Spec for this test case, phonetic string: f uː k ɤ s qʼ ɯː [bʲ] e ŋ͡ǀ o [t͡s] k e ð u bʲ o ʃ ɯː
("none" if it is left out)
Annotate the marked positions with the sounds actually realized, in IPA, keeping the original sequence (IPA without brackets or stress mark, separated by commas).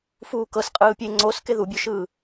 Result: pʲ, s